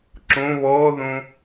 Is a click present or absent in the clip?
present